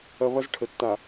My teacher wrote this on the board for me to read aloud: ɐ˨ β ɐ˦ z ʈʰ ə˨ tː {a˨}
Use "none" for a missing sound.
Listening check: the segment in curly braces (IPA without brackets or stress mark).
a˨